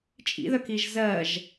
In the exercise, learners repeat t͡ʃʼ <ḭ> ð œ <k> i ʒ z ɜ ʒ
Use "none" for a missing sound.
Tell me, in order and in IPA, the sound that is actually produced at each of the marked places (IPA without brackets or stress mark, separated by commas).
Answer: ḭ, k